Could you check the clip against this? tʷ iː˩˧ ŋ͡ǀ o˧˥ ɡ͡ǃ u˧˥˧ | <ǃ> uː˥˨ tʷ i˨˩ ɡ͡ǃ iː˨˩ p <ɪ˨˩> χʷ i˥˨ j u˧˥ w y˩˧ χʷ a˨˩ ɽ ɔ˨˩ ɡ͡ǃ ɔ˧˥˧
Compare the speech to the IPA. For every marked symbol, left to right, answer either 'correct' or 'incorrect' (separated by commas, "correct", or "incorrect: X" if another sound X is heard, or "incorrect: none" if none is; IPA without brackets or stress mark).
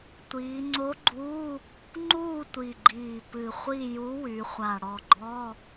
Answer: incorrect: ŋ͡ǃ, incorrect: ɨ˨˩